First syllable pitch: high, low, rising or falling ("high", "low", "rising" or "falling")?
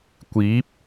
rising